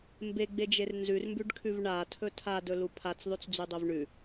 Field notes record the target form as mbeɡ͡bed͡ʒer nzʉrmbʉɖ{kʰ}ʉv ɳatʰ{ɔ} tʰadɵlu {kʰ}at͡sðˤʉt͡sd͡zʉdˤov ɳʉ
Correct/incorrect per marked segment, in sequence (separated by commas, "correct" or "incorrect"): correct, incorrect, incorrect